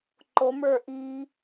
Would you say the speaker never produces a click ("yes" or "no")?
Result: no